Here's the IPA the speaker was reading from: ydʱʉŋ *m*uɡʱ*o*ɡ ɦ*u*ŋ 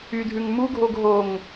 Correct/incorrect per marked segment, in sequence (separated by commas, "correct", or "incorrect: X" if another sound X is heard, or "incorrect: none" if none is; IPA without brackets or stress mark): correct, correct, incorrect: o